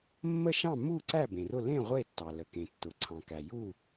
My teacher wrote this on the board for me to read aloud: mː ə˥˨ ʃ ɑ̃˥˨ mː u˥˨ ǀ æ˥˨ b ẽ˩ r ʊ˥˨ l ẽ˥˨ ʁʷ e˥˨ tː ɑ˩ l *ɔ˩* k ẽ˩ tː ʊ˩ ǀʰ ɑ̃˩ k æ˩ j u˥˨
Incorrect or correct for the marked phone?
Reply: incorrect: ə˩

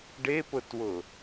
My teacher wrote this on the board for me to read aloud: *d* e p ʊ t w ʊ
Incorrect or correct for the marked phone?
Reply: incorrect: ɖ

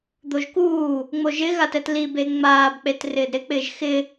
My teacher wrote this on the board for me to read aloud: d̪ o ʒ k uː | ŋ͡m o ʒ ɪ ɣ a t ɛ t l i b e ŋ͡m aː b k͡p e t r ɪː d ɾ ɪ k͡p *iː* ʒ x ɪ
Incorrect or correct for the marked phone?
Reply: incorrect: ɪː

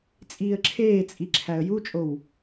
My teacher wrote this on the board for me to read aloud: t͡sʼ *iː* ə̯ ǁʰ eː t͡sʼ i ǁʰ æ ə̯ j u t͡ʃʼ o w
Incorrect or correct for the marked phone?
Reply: correct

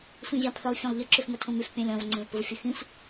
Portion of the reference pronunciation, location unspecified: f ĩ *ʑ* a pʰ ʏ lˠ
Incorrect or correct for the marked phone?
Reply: correct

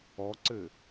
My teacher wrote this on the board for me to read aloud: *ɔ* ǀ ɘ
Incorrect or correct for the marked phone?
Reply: correct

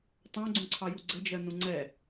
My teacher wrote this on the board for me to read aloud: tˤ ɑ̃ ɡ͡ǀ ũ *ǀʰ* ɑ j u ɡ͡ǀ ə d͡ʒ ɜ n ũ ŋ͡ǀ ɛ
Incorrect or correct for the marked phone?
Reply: correct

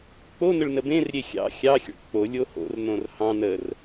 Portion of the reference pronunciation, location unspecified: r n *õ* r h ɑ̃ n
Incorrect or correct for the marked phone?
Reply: correct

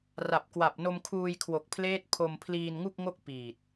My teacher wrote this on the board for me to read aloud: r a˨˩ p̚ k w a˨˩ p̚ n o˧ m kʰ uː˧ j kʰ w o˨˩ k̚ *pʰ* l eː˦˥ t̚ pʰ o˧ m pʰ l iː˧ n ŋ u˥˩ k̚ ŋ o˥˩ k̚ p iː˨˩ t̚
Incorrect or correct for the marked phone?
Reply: correct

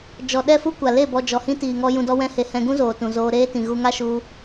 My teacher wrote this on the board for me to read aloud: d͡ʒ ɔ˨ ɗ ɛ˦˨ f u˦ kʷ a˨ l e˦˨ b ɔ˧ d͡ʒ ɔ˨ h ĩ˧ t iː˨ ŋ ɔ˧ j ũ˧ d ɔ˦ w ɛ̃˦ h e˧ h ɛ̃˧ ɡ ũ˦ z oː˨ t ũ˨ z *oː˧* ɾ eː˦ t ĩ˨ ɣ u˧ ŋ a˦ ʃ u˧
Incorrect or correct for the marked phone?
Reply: correct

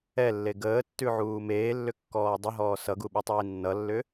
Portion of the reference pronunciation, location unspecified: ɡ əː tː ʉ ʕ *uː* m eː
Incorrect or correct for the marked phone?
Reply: correct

